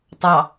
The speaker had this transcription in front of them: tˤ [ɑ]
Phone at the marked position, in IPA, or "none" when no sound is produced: ɑ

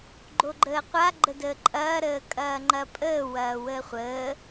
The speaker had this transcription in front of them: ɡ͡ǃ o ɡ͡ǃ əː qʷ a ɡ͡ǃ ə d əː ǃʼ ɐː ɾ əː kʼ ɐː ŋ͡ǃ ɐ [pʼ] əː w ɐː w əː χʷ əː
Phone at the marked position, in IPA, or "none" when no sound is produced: pʼ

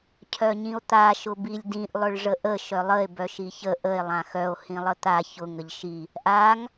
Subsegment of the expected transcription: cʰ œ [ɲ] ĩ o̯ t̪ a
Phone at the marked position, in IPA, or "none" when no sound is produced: ɲ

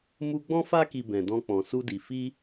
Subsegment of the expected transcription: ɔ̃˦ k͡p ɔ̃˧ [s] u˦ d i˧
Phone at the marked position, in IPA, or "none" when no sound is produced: s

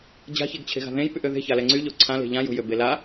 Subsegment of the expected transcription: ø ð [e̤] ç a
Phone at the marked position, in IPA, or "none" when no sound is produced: e̤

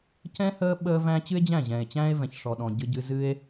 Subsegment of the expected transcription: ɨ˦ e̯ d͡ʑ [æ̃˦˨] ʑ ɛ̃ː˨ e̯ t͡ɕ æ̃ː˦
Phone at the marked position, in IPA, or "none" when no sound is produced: æ̃˦˨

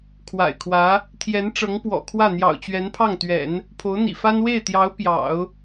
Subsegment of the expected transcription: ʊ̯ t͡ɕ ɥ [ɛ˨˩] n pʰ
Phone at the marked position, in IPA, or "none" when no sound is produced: ɛ˧˥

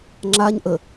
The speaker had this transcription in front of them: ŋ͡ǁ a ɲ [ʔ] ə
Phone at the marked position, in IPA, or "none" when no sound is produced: ʔ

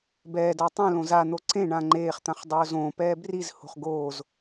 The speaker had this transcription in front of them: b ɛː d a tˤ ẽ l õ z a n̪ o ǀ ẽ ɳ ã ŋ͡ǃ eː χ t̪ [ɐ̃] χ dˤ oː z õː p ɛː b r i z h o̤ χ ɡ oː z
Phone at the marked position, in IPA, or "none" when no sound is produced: ã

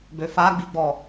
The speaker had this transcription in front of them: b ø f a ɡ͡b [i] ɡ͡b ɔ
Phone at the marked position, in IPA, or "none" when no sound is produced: i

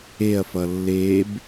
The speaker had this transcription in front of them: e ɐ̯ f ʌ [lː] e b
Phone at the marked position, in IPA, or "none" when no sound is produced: lː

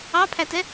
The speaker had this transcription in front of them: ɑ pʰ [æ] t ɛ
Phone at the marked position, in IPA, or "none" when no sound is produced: æ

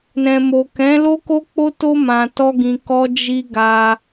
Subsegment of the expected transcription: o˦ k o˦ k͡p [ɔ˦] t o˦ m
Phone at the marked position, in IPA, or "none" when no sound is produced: o˦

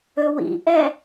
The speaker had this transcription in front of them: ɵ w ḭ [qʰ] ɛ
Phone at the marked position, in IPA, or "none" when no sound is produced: ʔ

